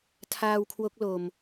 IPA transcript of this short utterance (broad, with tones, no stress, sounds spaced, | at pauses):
tʰ aː˧ w kʰ w o˦˥ k̚ l o˨˩ m